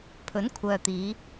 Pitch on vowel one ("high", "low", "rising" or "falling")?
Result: rising